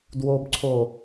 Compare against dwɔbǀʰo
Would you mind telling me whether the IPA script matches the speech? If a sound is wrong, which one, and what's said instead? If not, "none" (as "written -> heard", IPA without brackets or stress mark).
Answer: ɔ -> o